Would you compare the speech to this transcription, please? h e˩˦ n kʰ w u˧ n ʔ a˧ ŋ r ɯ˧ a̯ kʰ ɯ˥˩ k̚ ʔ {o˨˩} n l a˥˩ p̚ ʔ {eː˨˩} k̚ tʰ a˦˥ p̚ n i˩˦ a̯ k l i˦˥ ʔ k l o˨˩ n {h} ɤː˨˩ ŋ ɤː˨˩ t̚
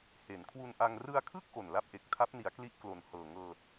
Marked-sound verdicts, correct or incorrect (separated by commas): correct, incorrect, correct